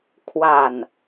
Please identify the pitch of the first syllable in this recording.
low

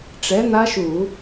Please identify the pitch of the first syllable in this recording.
rising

